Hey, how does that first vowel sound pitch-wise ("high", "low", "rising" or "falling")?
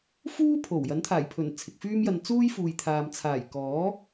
high